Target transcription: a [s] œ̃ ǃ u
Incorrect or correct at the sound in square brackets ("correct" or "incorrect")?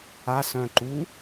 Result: correct